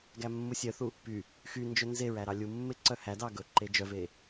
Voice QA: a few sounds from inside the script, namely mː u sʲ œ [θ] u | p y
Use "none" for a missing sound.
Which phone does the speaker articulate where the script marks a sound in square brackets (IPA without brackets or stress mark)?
θ